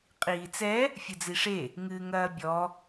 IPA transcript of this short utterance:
qʼiːt͡sɛ | fʲɨd͡ziʂe | ŋɨːŋɐːbʲɔ

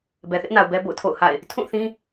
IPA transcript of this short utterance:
bɛ˨θɪ˦ʔna˨ʊ̯ bɛ˦bo̰˦˨ʊ̯tʰo̰˦˨ʊ̯ha̰˦˨ɪ̯ | tʰũ˦˨θĩ˦

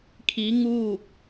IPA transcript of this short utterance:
kʰi˧˥ŋuː˥˨k̚

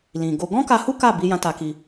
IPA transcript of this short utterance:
lĩ˨ɡo˧ ɡɔ̃˦ka˧hu˦ ka˦˨ bi˧jã˧ ta˧ki˧

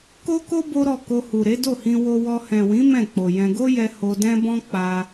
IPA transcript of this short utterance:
ko˦ko˦ bo˦ɾɔ˦˨ ko˧hu˨ ɾe˨˦do˦˨hĩ˧ wo˧wɔ˧ hɛ̃˨wĩ˨˦ mɛ̃˦˨k͡po˨jɛ̃˧ ɡo˦jɛ˧ ho˧dɛ̃˦bɔ̃˦ k͡pa˧

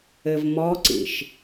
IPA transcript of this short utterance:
ɘvmɔǀḭʃ

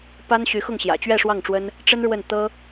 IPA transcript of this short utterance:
pa˥nɕy˧˥xʊ˥˩ŋɕjä̰˨˩ t͡ɕɥɛ˥˧ʂwɑ˥˩ŋʈ͡ʂwə˥n | ʈ͡ʂə˥nɻwə˥˩n t̪ɤ˥

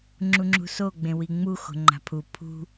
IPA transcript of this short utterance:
ŋ͡ǁuŋ͡ǁṳso ɡ͡bẽwiŋ͡mu xo̤ŋ͡ǃa̤pʰu pʰṳ

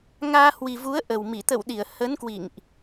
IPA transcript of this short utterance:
ŋaː˧hwi˨˩vu˨˦ə̯ ʔə˨˩wmi˧˩ t̪ə̰˧˨w ɗi˧˩ə̯ hə˨˦nkwḭ˧˨ŋʔ

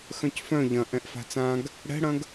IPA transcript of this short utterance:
xœ̃cfœ̃ ʎɐ̃ ʔɛ̃ʔfa̤t͡sãɡ | ɽɛ̤ɽɐ̃ɡ

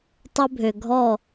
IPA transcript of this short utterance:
tˤə˦bʱø˨ɡʱɔ˦˨

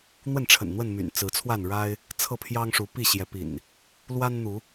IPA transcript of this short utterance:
n̪wə˥˨nʈ͡ʂʰə̰˨˩n n̪wə˥˨nmy̰˨˩n t͡sɹ̩˨˦t͡sʰwa˥˨nɻa˦ɪ̯ | t͡sʰɤ˥˨pʰjɑ˦ŋʂu˨˦ pi˥˨ɕjɛ˨˦pḭ˨˩n | lwa˦nn̪u˨˦

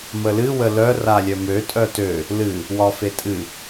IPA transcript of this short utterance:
məlɨ wəlœ ralʲœmø tʼœtø | lɨ | wɒfetʼɨ

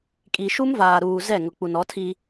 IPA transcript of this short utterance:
kʼi˨ʃu˦mvaː˨ɾuː˨ zɛ˦˨ŋʊ˨ k͡pu˨nɔ˨˦tʰi˦

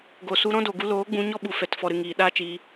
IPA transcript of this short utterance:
ɡo˨ su˧ɾɔ̃˦do˨ɡu˧ loː˨˦ɡ͡bũ˧ ɲɔ˦ ɓu˨ fɛ˨t fɔ˨ɾɨ˨ ŋiː˨ ɗaː˦t͡ʃiː˧

